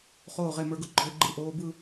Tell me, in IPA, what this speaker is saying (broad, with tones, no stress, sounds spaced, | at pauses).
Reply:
χ oː˧˩ ʁ e˧˩ m ə˞˧ ɡ ʊ˧ ɡ͡ǃ ɔ˧ ɪ̯ ɡ͡ǃ ɯ˧˩ ʔ oː˧ b ɯ˥˧